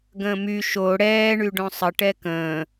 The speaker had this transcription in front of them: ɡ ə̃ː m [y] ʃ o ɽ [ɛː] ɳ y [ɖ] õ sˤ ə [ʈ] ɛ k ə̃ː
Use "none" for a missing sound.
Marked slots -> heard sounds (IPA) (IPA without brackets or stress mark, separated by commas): y, ɛː, ɖ, ʈ